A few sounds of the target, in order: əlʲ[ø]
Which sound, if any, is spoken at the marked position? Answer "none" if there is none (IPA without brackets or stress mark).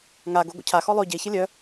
œ